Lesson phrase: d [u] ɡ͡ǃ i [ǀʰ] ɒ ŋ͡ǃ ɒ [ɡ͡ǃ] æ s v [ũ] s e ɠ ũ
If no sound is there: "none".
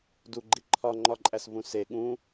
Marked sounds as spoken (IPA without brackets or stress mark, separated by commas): u, ǃʰ, ǃʼ, ũ